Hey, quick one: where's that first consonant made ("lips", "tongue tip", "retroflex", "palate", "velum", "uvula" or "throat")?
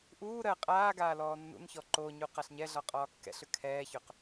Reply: throat